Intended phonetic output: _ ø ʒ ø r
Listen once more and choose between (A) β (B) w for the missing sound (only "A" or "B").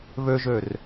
A